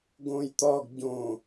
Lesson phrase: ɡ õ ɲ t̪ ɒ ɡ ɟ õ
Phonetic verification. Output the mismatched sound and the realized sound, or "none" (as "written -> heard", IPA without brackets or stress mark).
ɲ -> j